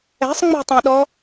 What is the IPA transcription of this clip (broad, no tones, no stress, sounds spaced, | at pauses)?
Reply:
ɛ̤ sˤ ŋ͡m o̤ tˤ ɛ̃ ɗ ɔ